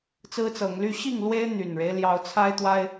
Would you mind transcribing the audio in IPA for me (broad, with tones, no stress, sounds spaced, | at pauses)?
t͡s ɹ̩˦ t͡s ɤ˨˦ ŋ l y˦ ɕ i˥˨ ŋ l w e˦ ɪ̯ n̪ y˨˩ n ɻ e˦ ɪ̯ l j ɑ˨˦ ʊ̯ t͡sʰ a˦ ɪ̯ t̪ w a˦ ɪ̯